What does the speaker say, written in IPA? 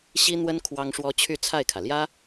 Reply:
ɕ i˥ n̪ w ə˥ n kʰ w ɑ˥ ŋ ʂ w ɔ˥ t͡ɕʰ y˥˧ t͡sʰ a˥˩ ɪ̯ kʰ ä˩ l j ä˥

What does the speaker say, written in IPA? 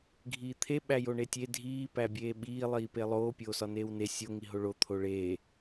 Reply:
ɡʱ iː t̪ʰ e ɓ æ j o ɳ e tʲ e dʱ iː p æ bʲ eː ɓ iː lˠ iː p e lˠ oː pʲ oː s ɒ n eː w n e sʲ o ŋ i ɦ o ɭ o t̪ʰ o ɭ eː

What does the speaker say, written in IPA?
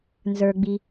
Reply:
n z ə˞ ɡ͡b i

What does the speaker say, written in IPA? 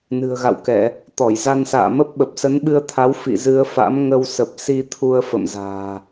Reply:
n ɨ̤˨˩ ə̯ ɣ a̰˧˨ w k ɛ˧˩˨ | t̪ ɔ˧˩ j z a˧ n s a̰ː˧˨ m ə˦˥ p̚ ɓ ə˨˩ p̚ s ə˨˦ n ɓ ɨ˧ ə̯ t̪ʰ a˨˦ w f ḭ˧˨ z ɨ˧ ə̯ f a̰˧˥ m ŋ ə˧ w s ə˨˩ p̚ s i˧ t̪ʰ u˧ ə̯ f ə̰˧˨ m z a̤ː˨˩

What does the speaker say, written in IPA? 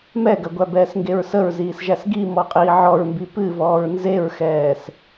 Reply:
m ɛ ɡ ɐ ɡʷ æ b ɛː s ŋ ɡ e ɹ s ə ɹ z iː s ʒ æ s ɡ i m ɔ qʼ iː ʕ ɔ ɹ m b i p ɨ v ɔː ɹ n z e ɹ x ɛː s

